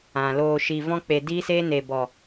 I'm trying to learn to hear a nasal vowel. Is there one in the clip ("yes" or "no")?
yes